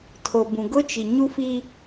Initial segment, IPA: tʰ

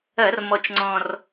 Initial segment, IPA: ɐ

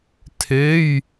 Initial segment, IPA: tʰ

